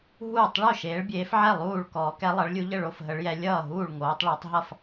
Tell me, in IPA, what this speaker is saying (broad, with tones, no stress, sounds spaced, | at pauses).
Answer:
ɦ uː˥˨ tˤ ɭ o˥˨ ʃ eː˨˦ ɭ bʲ eː˨˦ f ʕ ɛ˥˨ lˠ uː˥˨ ɭ k ɔː˨˦ k ɛ˨˦ lˠ ʌ˨˦ ɭ lʲ u˨˦ ʎ ə˥˨ ɭ o˥˨ f ɦ ə˨˦ ɭ j ɛ˨˦ lʲ ʌː˥˨ ɦ uː˥˨ ɭ ŋ oː˨˦ tˤ ɭ ɔ˨˦ tˤ ɦ ʌ˥˨ f